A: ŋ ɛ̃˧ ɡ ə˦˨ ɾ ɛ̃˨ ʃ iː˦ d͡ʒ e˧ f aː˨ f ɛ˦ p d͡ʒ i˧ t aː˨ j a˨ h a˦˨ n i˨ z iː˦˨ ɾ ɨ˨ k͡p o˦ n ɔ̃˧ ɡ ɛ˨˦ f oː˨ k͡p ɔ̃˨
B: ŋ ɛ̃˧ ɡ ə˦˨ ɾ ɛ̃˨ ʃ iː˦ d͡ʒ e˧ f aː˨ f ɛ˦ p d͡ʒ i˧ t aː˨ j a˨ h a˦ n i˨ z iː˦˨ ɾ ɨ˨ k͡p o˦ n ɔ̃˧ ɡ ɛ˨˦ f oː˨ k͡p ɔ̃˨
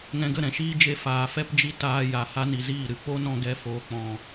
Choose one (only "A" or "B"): B